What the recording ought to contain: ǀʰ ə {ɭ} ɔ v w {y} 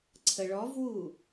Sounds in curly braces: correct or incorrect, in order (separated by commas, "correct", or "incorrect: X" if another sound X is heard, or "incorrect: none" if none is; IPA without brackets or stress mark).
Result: correct, incorrect: u